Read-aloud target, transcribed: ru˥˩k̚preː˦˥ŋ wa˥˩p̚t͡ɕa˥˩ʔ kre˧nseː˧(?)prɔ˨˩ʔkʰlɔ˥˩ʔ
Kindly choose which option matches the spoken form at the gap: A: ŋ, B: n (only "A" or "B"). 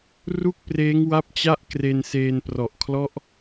B